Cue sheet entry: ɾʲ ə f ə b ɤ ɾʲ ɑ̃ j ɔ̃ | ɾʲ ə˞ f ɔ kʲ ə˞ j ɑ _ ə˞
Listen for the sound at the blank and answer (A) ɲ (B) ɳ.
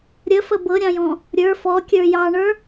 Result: B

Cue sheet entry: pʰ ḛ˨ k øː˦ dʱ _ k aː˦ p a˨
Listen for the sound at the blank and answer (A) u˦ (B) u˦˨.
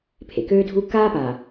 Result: A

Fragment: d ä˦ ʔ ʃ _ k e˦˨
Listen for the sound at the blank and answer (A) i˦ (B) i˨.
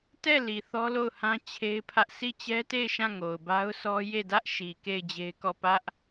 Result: B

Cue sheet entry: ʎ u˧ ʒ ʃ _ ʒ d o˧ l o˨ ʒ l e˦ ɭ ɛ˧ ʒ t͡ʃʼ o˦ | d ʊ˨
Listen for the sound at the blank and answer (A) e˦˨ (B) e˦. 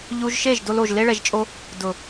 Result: A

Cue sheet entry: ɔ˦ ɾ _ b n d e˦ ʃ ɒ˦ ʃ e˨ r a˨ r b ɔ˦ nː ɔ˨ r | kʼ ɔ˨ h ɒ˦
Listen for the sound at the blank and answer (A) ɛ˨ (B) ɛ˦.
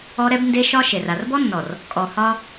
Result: B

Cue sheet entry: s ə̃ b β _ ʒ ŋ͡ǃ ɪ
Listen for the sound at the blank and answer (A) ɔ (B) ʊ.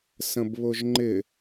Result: B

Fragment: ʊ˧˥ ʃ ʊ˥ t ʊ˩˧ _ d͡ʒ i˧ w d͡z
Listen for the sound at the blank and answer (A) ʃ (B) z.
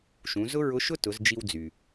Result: B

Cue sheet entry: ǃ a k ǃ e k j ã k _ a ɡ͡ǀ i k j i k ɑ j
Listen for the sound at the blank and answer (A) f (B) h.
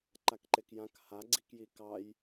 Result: B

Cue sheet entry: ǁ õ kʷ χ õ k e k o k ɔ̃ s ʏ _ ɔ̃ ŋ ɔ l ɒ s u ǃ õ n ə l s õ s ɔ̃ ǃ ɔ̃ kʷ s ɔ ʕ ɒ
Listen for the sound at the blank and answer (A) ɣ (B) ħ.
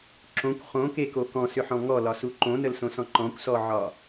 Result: B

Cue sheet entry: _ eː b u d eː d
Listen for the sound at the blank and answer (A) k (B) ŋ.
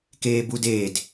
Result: A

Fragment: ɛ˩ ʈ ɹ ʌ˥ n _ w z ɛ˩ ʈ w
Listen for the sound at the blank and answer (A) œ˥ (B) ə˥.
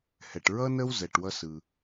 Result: B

